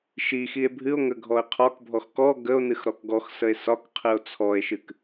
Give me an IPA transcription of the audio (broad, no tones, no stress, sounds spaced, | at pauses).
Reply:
ʃ i x i e̯ bʱ ɨ o̯ ŋ ə ɡʱ ɔ e̯ qʰ ɒ k bʱ ɔ x k ɔ ɡ ə o̯ n ɨ x ɾ ɔ k ɡ ɔ x s ə e̯ s ɒ k qʰ ɨ o̯ t͡sʰ ɔ e̯ ʃ ɨ k